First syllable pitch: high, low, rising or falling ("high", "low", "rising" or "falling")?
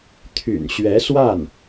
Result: low